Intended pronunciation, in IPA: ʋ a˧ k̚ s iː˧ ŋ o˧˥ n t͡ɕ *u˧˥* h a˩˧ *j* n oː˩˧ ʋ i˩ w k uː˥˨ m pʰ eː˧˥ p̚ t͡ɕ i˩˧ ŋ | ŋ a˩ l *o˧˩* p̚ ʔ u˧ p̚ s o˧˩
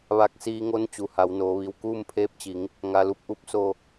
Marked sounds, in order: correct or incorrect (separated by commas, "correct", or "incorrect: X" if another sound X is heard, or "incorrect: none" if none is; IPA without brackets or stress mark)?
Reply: incorrect: u˩, incorrect: w, incorrect: u˧˩